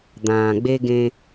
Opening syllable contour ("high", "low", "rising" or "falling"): low